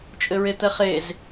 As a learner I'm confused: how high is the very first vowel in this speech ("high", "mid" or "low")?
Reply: mid